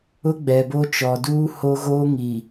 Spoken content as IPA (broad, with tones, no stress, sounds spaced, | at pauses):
ʊ˦ ɡ͡b ɛ˨ b o˦ t͡ʃ ɔ˨ d uː˦ h o˦ ɣ oː˦ ŋ i˨